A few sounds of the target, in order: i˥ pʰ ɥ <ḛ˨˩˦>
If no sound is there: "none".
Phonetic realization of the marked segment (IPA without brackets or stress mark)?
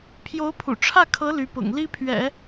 ɛ̰˨˩˦